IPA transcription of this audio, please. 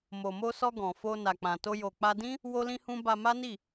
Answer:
mo˨mo˧sɔ˧ ɡɔ̃˨ fo˧ na˨k͡pã˨to˧ jo˨k͡pa˧dĩ˦ | wo˦lĩ˦hũ˦ ba˧ma˦ni˦˨

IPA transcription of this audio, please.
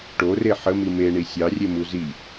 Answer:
ʈore ħəmi meɳi sʲɑrʲemu zi

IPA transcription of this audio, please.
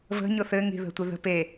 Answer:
və̤ ɲʊθɘ ŋi̤ðə̤tʷɪðə̤ pe

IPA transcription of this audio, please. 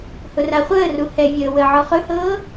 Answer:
hʊraχʷəːru hɛvʲəː wəːʕɔχɵhɤː

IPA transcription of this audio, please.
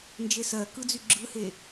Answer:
nd͡ʒesɜ kɯd͡zyɡ͡ǁɯhe

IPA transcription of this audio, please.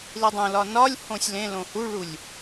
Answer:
lidˤõlɒ nɒlʲhõsʲ lẽ lõhuɭulʲ

